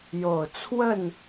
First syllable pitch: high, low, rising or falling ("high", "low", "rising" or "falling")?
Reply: low